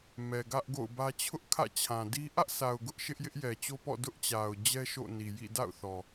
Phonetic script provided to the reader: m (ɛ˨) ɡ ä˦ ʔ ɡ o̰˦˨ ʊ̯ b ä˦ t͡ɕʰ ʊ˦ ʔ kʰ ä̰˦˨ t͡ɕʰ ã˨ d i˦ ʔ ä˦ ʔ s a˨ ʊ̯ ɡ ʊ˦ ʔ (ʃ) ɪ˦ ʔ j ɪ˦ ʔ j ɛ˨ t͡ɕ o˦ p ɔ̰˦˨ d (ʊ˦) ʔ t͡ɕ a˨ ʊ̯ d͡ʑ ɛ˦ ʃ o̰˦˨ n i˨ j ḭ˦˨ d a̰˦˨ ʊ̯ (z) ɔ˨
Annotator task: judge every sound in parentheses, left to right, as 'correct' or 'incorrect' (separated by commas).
correct, correct, correct, incorrect